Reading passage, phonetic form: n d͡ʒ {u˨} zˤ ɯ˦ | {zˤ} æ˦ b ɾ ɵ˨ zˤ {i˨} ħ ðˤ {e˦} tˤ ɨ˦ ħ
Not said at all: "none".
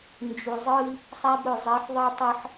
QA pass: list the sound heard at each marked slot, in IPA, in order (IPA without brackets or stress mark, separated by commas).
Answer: u˨, sˤ, i˨˦, i˦